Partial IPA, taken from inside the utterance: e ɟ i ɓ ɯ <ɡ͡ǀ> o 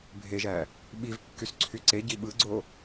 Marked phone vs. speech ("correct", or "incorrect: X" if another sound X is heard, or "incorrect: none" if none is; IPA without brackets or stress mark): correct